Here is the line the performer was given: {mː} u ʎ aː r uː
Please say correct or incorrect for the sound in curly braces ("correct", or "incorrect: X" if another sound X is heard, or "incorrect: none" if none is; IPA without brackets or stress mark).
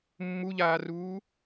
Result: correct